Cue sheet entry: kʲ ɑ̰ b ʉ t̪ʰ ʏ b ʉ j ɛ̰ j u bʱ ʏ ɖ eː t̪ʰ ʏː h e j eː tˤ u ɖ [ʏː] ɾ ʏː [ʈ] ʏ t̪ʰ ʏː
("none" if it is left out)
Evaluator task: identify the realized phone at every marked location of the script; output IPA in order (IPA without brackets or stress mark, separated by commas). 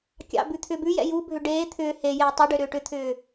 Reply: ʏ, ʈ